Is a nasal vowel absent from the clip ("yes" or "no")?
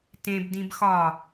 no